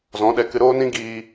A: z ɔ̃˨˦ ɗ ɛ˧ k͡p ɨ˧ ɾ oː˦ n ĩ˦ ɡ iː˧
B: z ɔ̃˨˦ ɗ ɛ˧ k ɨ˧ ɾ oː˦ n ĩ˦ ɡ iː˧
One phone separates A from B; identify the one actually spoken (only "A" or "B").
B